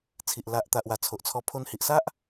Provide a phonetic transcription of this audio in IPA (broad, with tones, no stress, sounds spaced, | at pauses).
t͡sʰ i˨ ʔ l a˨ ʔ t̪ a˨ ʔ w a˨˩ t͡sʰ o˨ ʔ t͡sʰ ɔ˧ pʰ o˧ n h i˨ ʔ s a˦ ʔ